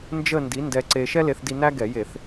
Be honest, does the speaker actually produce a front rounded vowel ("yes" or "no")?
no